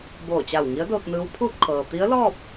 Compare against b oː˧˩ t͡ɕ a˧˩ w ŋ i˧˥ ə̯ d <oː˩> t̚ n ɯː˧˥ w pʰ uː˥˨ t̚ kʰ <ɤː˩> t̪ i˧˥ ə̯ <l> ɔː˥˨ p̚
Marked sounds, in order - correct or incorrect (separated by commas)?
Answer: incorrect, correct, correct